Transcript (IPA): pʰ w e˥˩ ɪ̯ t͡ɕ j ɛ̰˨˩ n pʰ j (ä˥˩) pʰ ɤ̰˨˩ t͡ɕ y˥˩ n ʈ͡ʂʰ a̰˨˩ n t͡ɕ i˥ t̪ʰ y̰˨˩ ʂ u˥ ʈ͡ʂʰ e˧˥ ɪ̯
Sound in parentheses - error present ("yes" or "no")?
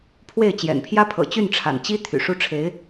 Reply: yes